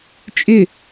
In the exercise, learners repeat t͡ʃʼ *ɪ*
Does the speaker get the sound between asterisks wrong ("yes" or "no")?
no